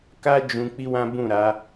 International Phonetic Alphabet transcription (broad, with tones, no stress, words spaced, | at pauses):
ka˦ d͡ʒũ˧ k͡pi˦wã˦bũ˦˨ ɾa˨˦